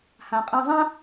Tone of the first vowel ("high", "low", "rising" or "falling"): low